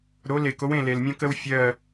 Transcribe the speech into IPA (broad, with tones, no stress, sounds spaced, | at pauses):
ɾ o˩˧ l e˩ k o˩˧ w ẽ˧˩ l e˩ l mʲ õ˧ k ə˧ w fʲ ɜ˧˩